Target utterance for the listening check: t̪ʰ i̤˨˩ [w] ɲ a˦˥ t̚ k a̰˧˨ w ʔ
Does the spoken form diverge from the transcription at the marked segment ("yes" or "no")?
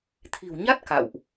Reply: no